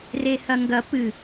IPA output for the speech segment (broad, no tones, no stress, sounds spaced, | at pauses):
r e h ɐ ŋ ɡ ɐ p ɨ